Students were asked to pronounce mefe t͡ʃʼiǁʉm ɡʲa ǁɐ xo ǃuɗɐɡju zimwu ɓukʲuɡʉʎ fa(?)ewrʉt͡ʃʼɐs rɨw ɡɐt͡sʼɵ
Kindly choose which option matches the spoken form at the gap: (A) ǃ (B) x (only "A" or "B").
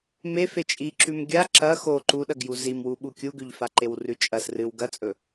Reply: A